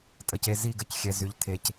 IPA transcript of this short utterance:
tʼə˨˩ce˦˨ zi˦˨ɡə˦˨c xʲɛ˨˩zy˨˩ʎ tʰe˨˩c

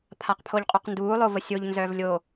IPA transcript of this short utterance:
pʰaqpʰoʎqʼuqnduː lˠovəsʲoʎ nzœːvlʲo

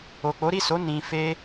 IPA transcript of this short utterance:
o˨k͡po˨˦ɾi˦˨so˨˦ nĩ˧fe˦

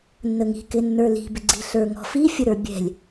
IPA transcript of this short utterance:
nːəŋi̤ kɪnːə˞li̤ bɪɡ͡ǀi̤ ɬə˞ŋɔ̤ fi fʲəɾə˞bʲɛ̤lʲ

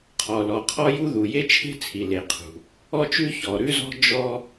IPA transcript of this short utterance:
qʰɔ˩lɔ˩qʰɔ˥ju˥ ðu˩je˥t͡ʃʰe̤˥ t͡sʰi˩ le˩qʰṳ˩ | ɔ˥t͡ʃʉ˥ çɔ˩ɾʉ˥zɔ̤˥ d͡ʒɔ˥

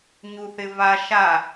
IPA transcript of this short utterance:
ɲuθɪva ʃa

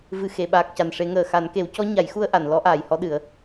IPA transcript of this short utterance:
vɨ˨˩xe˨˩˨ ɓaː˨˩k̚ca˨˩nʂe˨˩˦ŋəː˨˩ xa˨˩˦nke˨˩˦wcɔ˧˥ ɲa˨˩˦jxu˧ə̯ʔa˨˩˨n lɔ˧˥ʔaː˨˩jhɔ˧ɗɨ˨˩˦ə̯

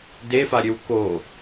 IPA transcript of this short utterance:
defaɾʲøw ko

